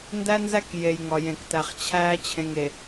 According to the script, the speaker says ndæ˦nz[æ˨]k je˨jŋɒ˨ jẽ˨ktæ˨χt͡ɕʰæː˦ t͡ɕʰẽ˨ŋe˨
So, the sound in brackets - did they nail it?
no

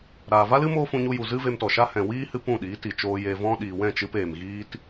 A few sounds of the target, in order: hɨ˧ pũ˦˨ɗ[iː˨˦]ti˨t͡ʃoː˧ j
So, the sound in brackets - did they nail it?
yes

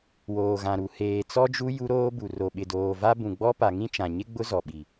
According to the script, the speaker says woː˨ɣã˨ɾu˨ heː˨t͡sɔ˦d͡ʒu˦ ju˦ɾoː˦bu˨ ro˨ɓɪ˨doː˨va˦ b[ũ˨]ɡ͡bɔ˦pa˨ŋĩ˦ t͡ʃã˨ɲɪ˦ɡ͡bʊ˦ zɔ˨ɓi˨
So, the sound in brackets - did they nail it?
yes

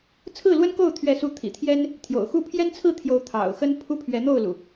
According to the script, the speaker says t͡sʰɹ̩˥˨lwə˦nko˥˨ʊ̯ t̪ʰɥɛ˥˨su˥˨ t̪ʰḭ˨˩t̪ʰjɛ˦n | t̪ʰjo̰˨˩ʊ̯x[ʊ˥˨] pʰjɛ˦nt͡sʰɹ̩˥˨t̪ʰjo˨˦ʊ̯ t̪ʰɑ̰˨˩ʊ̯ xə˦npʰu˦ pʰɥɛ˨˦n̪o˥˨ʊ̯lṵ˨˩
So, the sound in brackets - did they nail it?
no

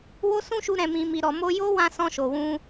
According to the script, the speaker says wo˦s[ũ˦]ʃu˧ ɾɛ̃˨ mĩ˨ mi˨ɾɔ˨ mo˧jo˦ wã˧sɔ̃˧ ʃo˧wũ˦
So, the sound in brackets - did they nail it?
yes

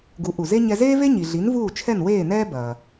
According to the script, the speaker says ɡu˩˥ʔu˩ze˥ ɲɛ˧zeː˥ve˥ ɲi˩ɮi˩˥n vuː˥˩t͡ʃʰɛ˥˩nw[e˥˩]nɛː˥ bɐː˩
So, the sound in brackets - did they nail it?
no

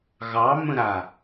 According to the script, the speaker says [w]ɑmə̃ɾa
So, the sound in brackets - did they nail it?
no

